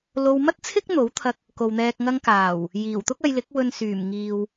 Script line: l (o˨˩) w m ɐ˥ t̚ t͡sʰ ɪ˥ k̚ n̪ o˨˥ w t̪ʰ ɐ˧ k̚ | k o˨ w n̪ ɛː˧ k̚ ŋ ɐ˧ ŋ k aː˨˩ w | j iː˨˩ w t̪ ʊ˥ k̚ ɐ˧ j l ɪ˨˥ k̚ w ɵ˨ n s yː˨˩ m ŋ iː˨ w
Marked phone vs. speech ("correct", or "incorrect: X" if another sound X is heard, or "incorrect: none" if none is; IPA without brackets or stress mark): incorrect: o˧